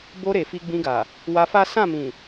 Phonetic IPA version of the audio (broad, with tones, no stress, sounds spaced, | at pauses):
b o˧ ɾ e˨ f i˧ ɡ͡b ĩ˧ ɡ a˨ | w a˧ f a˦ s ã˦˨ m ĩ˨